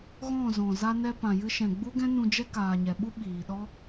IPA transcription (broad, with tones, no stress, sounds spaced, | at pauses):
ɣ ɔ̃˦˨ z ɔ̃˨ z a˧ n ɛ˧ p ã˨ j ɨ˧ ʃ ɛ̃˨ ɡ͡b u˦ ɡ ɛ̃˦ n ũ˧ d͡ʒ ɛ˦ k aː˨ ɲ ɛ˨ ɓ u˦ ɓ iː˨ ɗ ɔ˦